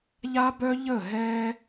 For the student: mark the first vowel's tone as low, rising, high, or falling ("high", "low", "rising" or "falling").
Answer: high